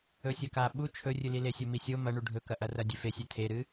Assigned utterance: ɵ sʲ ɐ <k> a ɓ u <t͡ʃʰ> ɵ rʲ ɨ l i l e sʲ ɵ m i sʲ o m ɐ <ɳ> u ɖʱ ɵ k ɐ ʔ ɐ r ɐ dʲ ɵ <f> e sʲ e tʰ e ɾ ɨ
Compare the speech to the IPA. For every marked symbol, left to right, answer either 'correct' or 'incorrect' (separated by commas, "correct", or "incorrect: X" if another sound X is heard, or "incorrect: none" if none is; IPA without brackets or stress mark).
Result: correct, correct, correct, correct